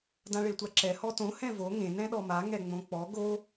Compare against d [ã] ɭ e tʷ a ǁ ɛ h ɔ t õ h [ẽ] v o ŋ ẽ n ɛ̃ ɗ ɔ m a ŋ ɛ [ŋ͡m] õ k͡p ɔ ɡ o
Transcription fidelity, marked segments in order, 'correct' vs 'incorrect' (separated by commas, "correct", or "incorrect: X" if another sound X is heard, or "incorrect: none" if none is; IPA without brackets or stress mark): correct, incorrect: ɛ̃, correct